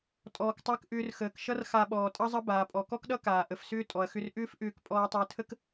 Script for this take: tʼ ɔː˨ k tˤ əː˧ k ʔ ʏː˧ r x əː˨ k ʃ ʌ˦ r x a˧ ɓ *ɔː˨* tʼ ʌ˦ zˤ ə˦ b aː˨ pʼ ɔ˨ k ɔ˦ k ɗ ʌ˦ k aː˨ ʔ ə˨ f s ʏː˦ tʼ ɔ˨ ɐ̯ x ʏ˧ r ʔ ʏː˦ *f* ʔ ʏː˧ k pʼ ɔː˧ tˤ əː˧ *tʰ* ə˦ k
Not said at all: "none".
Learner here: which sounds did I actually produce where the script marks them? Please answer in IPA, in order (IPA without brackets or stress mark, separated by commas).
ɔː˨, f, tʰ